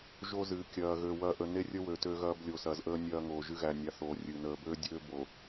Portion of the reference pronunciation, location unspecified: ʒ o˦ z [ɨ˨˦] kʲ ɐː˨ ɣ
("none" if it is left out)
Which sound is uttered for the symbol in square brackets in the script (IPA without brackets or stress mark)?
ɨ˨˦